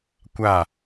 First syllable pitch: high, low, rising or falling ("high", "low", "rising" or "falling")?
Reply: falling